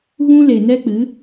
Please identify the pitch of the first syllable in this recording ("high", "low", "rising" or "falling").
high